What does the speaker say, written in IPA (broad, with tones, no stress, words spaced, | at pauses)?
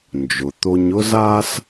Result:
nd͡ʒʊ˩t̪o˧ɲʊ˥zaː˥s